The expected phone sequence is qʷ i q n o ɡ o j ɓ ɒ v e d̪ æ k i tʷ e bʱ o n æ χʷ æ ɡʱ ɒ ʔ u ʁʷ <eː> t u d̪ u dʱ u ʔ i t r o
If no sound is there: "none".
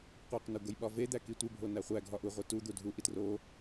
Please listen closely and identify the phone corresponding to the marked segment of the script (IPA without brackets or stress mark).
e